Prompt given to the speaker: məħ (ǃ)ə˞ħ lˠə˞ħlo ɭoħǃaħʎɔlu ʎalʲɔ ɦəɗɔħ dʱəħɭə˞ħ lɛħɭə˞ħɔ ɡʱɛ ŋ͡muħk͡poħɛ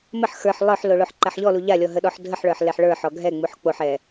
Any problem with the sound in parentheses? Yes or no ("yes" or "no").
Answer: yes